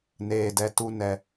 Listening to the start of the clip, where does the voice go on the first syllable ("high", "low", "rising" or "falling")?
low